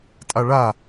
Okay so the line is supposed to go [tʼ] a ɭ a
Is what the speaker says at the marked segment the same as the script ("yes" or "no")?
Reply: yes